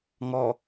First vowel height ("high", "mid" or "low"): mid